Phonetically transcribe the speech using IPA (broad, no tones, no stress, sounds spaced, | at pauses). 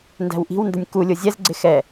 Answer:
n d æ̤ w ʔ i̤ w n d ə nʲ k u lʲ ʊ zʲ ɛ z ɡ͡ǀ ɪ x ɛ